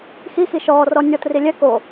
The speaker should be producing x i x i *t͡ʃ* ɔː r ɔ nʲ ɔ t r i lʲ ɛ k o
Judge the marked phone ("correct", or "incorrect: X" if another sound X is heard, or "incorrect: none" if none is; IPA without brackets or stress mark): incorrect: ʃ